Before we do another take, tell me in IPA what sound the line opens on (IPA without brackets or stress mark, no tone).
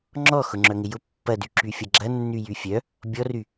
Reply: ŋ͡ǁ